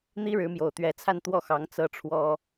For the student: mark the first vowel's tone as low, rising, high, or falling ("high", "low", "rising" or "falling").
high